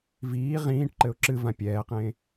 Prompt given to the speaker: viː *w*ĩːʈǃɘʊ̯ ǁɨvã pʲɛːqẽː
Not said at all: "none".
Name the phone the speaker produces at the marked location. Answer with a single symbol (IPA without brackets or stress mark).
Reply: ʁ